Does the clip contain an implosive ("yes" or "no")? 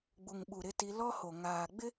yes